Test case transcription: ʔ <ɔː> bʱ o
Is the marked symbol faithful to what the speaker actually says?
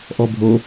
no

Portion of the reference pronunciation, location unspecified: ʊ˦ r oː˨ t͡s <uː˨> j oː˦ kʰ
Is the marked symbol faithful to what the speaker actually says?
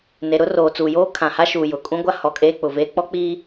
yes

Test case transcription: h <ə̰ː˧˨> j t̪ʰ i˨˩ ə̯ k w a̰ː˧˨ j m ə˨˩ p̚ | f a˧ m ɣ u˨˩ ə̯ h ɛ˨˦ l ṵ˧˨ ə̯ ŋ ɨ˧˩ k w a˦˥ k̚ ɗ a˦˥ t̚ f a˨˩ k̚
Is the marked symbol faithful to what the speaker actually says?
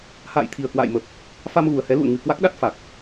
no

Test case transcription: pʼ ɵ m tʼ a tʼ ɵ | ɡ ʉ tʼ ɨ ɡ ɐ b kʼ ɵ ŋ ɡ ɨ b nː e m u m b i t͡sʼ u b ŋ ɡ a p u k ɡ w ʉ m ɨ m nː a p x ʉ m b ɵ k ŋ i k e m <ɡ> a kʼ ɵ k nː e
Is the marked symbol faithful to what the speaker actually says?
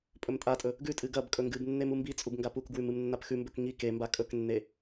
no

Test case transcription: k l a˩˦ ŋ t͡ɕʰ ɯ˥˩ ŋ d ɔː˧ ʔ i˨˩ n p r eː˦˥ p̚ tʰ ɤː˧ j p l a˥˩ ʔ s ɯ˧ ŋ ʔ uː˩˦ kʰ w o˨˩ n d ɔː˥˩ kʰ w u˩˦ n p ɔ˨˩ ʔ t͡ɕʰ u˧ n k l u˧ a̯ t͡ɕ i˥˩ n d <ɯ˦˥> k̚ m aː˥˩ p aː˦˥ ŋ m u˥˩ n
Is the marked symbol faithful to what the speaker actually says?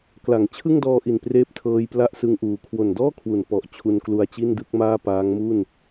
yes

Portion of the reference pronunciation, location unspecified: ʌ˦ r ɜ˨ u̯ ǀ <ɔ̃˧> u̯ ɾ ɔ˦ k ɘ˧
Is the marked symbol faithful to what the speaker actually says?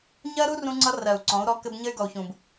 no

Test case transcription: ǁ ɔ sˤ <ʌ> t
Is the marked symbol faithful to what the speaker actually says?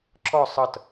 yes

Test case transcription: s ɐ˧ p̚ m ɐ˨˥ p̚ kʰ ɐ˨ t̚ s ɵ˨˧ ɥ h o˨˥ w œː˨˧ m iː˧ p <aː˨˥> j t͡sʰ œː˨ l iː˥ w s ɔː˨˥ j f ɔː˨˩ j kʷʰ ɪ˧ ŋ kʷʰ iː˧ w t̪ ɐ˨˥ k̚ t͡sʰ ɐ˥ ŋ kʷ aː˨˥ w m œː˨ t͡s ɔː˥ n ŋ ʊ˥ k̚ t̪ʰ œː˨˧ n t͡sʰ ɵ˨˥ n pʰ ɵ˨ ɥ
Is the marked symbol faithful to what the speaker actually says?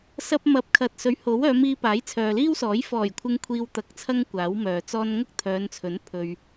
yes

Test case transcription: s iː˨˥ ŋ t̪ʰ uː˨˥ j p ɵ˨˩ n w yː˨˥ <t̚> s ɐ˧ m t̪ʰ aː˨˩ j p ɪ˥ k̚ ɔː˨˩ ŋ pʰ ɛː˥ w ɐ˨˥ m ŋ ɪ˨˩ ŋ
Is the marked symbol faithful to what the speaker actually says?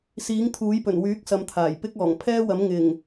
no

